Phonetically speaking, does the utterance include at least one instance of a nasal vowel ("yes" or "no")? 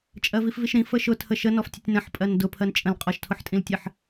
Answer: yes